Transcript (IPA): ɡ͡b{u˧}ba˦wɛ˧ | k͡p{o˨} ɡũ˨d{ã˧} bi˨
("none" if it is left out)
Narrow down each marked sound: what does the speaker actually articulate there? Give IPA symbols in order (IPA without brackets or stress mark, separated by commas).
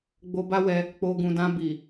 o˧, o˨, ã˧